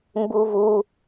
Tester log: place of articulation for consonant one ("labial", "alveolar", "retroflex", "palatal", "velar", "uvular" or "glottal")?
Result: labial